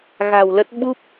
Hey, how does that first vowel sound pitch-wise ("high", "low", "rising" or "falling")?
low